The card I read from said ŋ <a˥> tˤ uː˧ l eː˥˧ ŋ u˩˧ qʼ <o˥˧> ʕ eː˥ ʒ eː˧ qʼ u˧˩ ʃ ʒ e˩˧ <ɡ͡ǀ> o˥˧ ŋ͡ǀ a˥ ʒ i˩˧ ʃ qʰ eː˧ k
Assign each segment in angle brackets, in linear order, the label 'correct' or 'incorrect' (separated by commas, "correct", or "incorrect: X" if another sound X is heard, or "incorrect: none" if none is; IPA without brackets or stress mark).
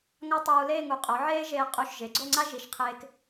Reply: correct, incorrect: o˩˧, correct